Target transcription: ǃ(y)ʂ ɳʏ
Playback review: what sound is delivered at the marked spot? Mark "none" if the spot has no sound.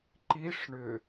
i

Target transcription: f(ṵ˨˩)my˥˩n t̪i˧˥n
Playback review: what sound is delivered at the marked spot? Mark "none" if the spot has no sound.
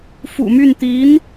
ṵ˨˩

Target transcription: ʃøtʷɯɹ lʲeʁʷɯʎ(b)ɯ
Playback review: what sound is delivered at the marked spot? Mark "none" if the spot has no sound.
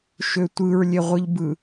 b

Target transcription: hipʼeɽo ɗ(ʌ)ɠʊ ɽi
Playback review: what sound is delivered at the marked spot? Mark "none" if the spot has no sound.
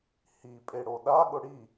a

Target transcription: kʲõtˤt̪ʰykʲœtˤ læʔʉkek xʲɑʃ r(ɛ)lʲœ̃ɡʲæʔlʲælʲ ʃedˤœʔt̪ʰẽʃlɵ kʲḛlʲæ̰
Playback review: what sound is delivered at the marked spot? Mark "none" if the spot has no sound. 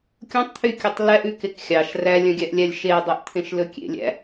æ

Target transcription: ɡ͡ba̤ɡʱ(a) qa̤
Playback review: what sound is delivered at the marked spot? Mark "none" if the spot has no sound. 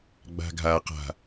a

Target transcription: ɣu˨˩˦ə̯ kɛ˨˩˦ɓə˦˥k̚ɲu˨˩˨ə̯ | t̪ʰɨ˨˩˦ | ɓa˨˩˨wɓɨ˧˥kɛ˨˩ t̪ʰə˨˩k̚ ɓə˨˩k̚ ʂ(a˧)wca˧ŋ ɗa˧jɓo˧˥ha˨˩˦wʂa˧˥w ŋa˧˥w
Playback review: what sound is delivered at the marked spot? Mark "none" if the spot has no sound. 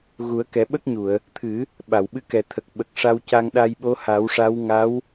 a˧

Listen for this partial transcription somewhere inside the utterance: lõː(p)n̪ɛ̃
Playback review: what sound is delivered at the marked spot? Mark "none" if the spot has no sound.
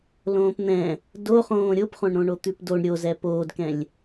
p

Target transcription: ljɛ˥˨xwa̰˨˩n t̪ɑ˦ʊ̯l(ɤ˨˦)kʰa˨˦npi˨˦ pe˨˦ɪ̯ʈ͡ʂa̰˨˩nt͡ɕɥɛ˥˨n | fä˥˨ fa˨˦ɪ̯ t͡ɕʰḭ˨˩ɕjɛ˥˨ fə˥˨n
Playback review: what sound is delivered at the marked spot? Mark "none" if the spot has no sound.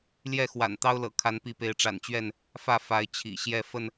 ɤ̰˨˩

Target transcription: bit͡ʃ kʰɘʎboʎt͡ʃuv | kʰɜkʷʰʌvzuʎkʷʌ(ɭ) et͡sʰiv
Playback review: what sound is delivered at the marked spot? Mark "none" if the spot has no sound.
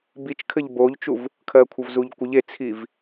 ʎ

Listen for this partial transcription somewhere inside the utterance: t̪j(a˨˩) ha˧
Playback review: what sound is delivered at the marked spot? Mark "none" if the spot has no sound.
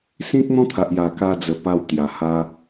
a˨˩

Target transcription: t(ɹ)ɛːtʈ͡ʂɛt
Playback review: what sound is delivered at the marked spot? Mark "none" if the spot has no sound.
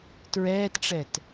ɹ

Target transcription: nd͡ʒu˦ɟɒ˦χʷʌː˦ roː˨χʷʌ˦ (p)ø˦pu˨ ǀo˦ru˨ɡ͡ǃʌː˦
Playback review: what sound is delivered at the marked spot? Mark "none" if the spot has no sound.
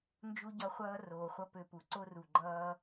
p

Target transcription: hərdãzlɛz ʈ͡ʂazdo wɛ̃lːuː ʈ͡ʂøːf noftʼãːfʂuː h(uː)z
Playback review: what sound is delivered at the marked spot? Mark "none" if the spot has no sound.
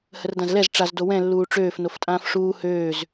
øː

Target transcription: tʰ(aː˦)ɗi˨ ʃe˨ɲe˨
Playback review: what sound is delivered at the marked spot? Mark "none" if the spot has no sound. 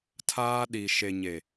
aː˦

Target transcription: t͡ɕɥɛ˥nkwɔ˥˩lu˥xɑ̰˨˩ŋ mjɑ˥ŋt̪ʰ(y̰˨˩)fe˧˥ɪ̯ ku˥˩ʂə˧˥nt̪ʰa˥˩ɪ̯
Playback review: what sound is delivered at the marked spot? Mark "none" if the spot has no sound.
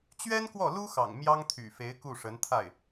y̰˨˩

